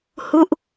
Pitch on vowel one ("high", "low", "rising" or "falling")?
falling